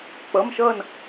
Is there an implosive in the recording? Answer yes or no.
no